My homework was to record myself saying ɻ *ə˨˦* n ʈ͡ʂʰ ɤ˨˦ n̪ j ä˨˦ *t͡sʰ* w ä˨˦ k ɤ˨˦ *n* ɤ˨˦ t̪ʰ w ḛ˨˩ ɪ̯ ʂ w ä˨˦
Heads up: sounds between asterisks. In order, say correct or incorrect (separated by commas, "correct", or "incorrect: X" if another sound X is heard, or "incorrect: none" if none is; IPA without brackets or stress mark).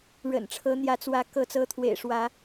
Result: incorrect: ə̰˨˩, incorrect: t͡s, incorrect: t͡s